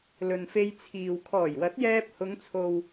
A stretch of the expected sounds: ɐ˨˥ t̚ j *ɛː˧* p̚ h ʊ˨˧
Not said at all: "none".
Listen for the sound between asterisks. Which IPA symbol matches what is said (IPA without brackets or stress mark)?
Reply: ɛː˧